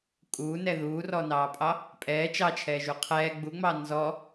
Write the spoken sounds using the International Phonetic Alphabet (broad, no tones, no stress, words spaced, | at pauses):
kʼuːnɛ ðuːrɔnɑːpʼɑ | pʼɛː t͡ʃɑt͡ʃʰɛːʒu qʰɛː ɡ͡buŋ͡mɑ nzɔ